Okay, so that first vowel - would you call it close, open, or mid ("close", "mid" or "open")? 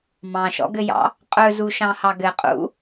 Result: open